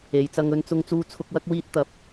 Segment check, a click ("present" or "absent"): absent